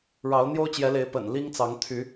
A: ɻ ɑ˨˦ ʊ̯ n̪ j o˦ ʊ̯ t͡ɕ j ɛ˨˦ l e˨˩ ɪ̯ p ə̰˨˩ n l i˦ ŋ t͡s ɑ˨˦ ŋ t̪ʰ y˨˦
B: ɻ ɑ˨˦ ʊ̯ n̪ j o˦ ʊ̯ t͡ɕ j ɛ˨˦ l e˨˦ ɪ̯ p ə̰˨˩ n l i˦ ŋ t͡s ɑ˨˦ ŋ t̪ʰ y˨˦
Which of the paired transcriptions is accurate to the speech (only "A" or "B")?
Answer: B